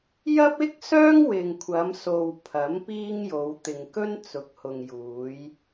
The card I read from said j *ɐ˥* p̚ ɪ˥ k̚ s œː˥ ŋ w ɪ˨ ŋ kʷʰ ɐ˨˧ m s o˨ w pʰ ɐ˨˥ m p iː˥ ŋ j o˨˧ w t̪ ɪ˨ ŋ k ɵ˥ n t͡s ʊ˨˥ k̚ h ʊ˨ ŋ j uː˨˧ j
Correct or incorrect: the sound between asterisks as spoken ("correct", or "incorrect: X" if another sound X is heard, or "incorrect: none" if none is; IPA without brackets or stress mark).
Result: correct